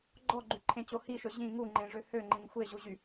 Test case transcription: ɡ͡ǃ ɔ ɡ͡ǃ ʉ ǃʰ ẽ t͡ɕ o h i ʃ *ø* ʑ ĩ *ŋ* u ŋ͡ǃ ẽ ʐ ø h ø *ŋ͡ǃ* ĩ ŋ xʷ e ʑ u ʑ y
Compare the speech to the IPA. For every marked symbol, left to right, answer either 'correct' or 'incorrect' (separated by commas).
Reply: incorrect, correct, correct